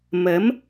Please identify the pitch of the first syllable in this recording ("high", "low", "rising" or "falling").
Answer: rising